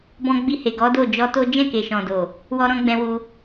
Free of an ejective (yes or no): yes